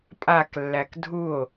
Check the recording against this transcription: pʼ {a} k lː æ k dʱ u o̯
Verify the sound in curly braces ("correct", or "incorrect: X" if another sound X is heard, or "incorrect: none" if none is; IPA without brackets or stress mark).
correct